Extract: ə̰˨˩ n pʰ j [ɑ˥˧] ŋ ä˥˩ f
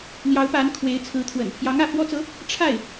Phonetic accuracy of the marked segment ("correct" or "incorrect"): incorrect